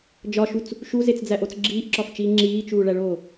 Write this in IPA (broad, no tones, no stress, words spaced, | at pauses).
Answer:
d͡ʒɒʃut͡s | ʃuzet͡sd͡zæʔot͡s ɡ͡ǁiːʔǁɒft͡ʃiː ŋ͡ǁiːt͡ʃuːɭæɭoː